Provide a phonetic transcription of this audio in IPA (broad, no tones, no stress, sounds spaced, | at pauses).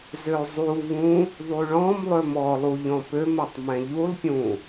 z ø zˤ u v ũ | ðˤ y ɭ ɔ̃ m lˠ ø m ɔ lˠ u ʎ ɔ̃ p ø m ɛ tˤ m ɛ̃ ʎ u lˠ pʲ ũ